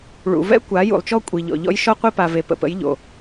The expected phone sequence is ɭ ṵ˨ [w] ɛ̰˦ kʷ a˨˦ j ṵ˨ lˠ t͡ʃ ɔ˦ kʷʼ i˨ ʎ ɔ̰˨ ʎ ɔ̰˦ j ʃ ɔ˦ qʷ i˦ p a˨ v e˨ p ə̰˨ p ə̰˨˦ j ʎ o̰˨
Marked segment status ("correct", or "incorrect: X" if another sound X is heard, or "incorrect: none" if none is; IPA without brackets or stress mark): incorrect: v